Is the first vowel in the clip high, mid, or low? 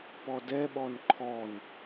mid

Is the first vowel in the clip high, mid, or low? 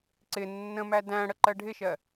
high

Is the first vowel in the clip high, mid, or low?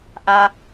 low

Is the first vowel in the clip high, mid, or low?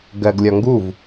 mid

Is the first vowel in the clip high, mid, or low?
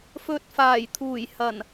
mid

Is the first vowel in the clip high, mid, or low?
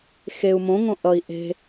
mid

